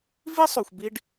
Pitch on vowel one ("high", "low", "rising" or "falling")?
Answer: high